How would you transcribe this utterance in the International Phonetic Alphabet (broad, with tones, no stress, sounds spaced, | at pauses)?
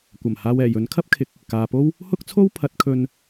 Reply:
kʷ ɐ˨˩ m h aː˧ w ɛː˨˩ j ɵ˨˥ n kʰ ɐ˥ p̚ kʰ ɪ˨˥ k̚ | k aː˨ p o˥ w | h ʊ˥ k̚ t͡sʰ o˥ w pʰ ɐ˨˥ t̚ kʰ ɵ˧ n